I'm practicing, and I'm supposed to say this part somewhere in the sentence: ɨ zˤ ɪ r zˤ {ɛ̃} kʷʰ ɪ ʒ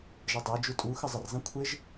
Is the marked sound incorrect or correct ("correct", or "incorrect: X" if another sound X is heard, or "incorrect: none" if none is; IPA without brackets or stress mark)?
correct